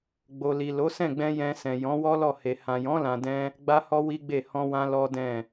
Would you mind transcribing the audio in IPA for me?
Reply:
ɡ͡b o˨ l i˨ l o˨˦ s ɛ̃˦˨ ɡ͡b ɛ̃˧ j ɛ̃˧ s ɛ̃˨ j ɔ̃˨˦ w ɔ˦ l ɔ˦˨ h e˨ h ã˨ j ɔ̃˨˦ l ã˧ d ɛ̃˦ | ɡ͡b a˦ h ɔ˦ w i˦ ɡ͡b e˦˨ h ɔ̃˧ w ã˧ l ɔ˦ d ɛ̃˦˨

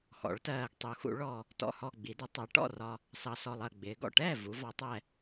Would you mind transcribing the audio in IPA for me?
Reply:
x ɔ̰˩˧ ɭ t ɜː˨˩ ɡ tˤ u˩˧ x ṵ˩˧ ɭ ɔ˨˩ | t ɔ̰˨˩ h ɔ˨˩ ɡ͡b i˩˧ d ə˩˧ tˤ æ˩˧ ʈ ɔ̰˥˩ r ɒ˨˩ | s ɑ˨˩ s ɔ˨˩ lˠ ɜ˨˩ ɡ͡b ɪː˩˧ ɡ ɔ̰˨˩ ʈ ɛː˥˩ v u˩˧ v ɒ˩˧ tˤ ɛ˨˩

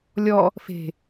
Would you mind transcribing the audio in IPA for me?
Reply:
lʲ ɔ | f e̤

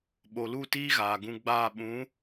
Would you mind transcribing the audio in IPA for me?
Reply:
ɓ o˨ l u˦˨ t iː˦ ɣ aː˨ ɡ ũ˧ ɡ͡b aː˦˨ ɓ ũ˨˦

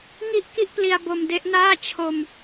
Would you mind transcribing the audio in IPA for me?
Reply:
ŋ i˥˩ ʔ k i˥˩ ʔ p l i˧ a̯ b o˧ m d e˦˥ ʔ n aː˥˩ t͡ɕʰ o˧ m

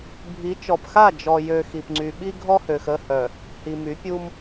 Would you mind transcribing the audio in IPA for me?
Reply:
bʱ i˨˦ t͡ʃ ɔ˨ p x a˦˨ d͡ʒ ɔ˨ j ø˨ x i˨ p ŋ͡ǀ y˨ ɓ i˦ ɡʱ ɔ˦ h ø˨ x ə˦˨ h œ˨ | h i˨ m y˨˦ pʲ u˦ m

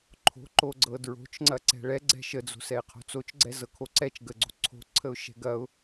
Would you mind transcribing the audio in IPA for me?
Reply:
ǃʰ o̤ ǃ o ɡ͡ǀ ɤ d ɹ o̤ t͡ʃ ŋ͡ǀ ɐ ǀ ɛ̤ ɭ ɛ ɡ͡ǀ ɛ̤ ʃ ə d͡z o̤ s ɛ ɪ̯ qʰ o̤ t͡s o t͡ʃ ɡ͡ǀ ɛ z ɤ kʰ o ǀ ɛ t͡ʃ ɡ ə ɡ͡ǀ o̤ ǀʰ o̤ ǀʰ ə ʊ̯ ʃ ɛ̤ ɡ ɐ ʊ̯

